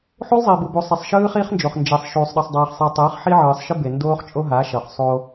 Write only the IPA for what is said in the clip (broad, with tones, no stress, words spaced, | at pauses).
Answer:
ħu˦lˠzˤi˨bu˨bu˨ sˤe˨sˤʃɯː˦χiː˦χnd͡ʒo˨χ nd͡ʒe˨sˤ ʃuː˨sˤɗɯ˨sˤdˤiː˨χ sˤi˨ tˤɯː˨˦χħi˦ʕɯː˨sˤʃɯ˦ be˨ndoː˦χt͡ʃʼo˦ɦa˨˦ ʃʌ˨χsˤo˦